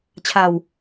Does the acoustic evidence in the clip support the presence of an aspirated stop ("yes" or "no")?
yes